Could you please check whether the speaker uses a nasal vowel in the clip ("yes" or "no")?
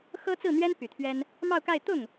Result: no